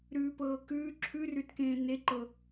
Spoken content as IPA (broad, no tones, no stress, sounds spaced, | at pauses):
ɾ ʉː p ɤː k ʉː ǁʰ ʉ r ʉ t k ẽː n e ǃ ɤ